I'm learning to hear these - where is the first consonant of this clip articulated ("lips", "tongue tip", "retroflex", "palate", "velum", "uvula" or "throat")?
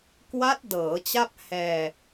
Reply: velum